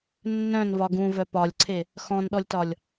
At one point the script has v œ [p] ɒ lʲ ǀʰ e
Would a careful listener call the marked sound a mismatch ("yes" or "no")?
no